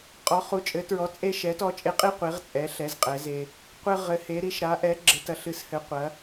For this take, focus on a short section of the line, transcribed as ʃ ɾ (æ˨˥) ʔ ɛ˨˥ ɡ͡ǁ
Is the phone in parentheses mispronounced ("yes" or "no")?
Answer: yes